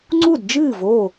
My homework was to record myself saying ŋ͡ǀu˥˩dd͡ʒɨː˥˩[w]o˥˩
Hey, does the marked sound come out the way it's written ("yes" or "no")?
no